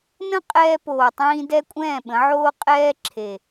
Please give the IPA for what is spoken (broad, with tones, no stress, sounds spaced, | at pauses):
n ə̃˦ qʼ ɛː˧ p oː˨ tˤ ĩː˧ d ɛ˦ kʷʼ ɛ̃ː˦˨ ɓ ə̃˨˦ ʕ oː˦ qʼ ɛː˦ ǁʰ e˨